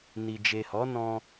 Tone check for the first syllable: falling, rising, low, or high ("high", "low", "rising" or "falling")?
low